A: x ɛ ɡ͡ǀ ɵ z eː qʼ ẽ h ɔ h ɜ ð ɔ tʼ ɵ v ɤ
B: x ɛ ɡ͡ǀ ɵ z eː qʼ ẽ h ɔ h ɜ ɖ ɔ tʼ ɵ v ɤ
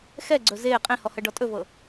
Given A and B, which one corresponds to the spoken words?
B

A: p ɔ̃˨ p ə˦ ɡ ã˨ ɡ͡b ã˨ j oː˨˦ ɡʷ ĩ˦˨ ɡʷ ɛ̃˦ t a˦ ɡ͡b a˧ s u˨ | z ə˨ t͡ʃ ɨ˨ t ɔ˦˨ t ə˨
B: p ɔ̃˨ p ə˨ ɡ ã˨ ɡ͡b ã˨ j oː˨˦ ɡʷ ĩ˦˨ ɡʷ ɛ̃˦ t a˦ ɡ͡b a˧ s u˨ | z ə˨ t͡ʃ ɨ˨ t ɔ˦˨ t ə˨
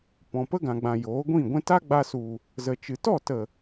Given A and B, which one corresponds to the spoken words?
A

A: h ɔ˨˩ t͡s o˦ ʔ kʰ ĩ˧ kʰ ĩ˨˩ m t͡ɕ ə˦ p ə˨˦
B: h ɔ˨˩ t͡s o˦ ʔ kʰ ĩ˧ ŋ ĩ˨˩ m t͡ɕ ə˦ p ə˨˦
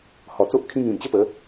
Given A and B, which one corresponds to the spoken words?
B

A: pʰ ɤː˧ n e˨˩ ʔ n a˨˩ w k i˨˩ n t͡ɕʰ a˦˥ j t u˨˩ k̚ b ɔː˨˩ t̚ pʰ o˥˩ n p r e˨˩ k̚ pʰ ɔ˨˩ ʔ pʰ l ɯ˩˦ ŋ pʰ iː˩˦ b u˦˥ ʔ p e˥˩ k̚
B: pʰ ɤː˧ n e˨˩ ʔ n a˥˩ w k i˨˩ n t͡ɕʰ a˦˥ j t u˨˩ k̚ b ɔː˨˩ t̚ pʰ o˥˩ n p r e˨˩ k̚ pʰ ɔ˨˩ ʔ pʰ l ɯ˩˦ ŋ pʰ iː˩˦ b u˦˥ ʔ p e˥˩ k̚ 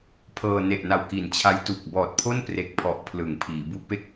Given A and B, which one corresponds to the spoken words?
A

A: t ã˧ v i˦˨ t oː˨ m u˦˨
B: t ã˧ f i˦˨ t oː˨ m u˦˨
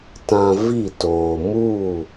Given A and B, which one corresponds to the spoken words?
A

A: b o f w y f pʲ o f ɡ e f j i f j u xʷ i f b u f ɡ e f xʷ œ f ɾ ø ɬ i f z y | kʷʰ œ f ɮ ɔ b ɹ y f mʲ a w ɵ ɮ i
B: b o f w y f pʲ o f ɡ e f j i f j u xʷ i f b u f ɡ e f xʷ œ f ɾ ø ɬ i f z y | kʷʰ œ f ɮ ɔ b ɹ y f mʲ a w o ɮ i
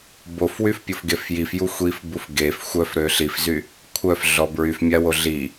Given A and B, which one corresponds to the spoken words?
B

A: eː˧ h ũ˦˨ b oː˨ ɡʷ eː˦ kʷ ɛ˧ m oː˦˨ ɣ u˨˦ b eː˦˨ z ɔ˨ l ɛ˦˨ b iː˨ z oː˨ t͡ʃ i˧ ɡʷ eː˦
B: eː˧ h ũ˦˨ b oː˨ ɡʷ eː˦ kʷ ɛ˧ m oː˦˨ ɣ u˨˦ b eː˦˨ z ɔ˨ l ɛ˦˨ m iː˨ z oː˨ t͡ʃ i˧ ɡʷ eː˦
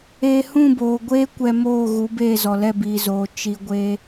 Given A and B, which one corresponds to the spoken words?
A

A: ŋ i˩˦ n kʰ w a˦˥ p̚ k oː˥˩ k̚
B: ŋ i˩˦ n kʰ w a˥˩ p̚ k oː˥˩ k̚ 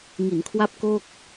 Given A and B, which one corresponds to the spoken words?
A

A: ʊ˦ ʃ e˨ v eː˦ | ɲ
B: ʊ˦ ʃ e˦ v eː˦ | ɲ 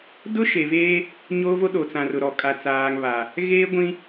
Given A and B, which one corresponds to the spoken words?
A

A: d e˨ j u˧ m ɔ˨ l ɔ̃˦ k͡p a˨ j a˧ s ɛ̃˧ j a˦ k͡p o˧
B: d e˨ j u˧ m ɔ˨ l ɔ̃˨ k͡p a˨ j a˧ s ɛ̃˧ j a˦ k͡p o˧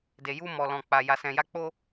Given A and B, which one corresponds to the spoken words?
B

